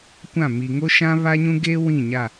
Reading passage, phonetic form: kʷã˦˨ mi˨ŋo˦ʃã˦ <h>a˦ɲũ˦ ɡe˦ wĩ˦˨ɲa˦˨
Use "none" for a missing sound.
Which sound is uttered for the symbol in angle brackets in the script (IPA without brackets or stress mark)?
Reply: β